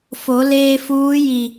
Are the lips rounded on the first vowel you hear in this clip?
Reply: yes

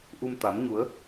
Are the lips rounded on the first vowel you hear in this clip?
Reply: yes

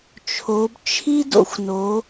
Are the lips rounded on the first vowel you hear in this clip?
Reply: yes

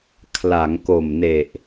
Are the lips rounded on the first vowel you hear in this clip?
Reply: no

